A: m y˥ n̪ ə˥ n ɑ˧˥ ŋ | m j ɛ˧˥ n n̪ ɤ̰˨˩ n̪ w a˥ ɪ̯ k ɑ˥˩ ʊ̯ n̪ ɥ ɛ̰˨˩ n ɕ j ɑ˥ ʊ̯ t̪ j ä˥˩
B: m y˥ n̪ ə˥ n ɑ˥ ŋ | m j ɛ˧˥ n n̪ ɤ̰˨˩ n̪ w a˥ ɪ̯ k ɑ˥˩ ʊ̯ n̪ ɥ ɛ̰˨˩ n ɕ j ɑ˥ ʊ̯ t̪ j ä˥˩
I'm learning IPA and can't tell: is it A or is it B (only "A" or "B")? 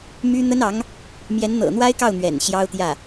A